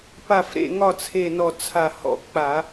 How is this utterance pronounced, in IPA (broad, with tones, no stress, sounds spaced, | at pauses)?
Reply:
p a˧˩ f ɾ ḛ˧˩ ŋ ɒ˥˩ t͡sʰ e˧˩ n ɔ˧˩ t͡sʰ a˧˩ h ɔ̰˧˩ k͡p a˧˩˧